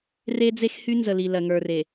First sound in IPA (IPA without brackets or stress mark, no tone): r